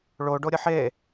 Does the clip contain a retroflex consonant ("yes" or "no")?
yes